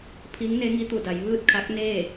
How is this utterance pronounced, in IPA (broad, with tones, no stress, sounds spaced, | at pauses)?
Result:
pʰ i˧˥ ŋ n e˧˥ ŋ i˧˥ t̪ u˧˩ d a˩˧ j ʋ ɯː˥˨ t̚ kʰ a˧˥ k̚ n eː˥˨